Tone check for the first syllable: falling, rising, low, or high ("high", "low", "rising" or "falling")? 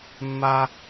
high